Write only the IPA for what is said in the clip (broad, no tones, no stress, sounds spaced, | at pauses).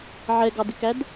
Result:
ʕ ɛ ɡ ɑ d ɪ k æ d